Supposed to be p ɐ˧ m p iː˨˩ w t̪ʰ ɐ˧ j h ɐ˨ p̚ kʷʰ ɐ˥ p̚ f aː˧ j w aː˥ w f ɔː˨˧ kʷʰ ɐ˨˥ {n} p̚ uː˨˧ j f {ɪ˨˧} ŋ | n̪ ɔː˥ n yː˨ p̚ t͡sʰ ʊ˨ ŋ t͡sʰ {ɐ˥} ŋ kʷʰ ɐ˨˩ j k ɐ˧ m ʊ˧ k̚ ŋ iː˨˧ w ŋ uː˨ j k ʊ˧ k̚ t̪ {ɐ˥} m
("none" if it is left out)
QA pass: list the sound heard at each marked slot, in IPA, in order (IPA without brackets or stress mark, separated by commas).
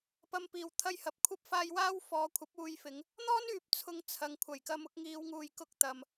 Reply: none, ɪ˨˧, ɐ˨, ɐ˨